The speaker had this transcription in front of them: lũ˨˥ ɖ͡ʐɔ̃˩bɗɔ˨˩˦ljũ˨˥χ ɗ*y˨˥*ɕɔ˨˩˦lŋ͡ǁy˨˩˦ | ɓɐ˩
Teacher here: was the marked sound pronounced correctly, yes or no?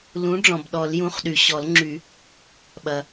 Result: no